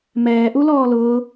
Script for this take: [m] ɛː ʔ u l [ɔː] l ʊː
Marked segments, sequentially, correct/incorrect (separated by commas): correct, correct